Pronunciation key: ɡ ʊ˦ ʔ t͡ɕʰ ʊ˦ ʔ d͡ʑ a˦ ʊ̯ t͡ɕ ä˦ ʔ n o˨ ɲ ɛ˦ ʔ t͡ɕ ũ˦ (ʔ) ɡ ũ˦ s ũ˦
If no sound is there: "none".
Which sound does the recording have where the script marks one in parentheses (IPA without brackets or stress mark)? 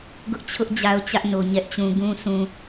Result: none